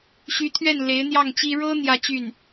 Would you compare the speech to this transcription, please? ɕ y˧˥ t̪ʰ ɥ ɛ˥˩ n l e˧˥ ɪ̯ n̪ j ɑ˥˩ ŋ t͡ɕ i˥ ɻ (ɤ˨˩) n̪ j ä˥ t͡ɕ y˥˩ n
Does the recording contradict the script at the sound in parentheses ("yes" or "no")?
yes